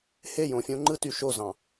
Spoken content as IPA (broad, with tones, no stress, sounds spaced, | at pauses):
h e˦˨ j õ˨ fʲ õ˦ ŋ͡ǃ ɯ˦ t y˨ ʃ o˦˨ z ɑ̃˨